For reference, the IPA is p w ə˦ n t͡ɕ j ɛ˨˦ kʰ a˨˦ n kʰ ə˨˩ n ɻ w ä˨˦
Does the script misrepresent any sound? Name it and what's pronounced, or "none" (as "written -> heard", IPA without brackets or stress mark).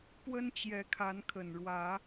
none